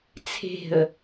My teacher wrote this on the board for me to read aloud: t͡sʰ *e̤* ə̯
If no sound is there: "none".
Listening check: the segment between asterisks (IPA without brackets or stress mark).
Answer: e̤